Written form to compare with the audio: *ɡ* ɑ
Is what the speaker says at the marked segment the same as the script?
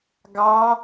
yes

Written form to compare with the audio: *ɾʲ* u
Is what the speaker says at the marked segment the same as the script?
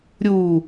yes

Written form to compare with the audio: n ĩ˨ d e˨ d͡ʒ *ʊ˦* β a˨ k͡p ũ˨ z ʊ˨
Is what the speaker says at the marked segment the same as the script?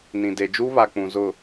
no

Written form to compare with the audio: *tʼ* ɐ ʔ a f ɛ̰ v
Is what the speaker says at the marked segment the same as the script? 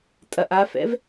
yes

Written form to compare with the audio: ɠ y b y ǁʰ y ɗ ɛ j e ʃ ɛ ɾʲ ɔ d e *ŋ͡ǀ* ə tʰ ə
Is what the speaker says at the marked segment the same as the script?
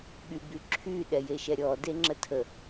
no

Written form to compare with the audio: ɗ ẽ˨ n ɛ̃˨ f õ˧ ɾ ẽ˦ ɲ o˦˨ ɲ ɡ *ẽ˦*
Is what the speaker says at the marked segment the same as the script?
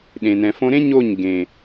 no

